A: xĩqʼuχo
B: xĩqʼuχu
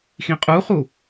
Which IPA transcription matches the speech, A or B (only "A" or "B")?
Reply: B